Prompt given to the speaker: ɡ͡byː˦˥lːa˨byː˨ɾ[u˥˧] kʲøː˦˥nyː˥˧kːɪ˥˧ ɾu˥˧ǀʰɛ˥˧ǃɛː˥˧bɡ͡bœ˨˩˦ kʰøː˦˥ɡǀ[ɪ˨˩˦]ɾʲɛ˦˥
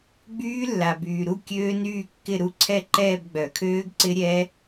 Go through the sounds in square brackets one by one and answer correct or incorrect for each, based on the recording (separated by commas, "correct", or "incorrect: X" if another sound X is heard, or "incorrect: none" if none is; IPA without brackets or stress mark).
correct, incorrect: ɪ˦˥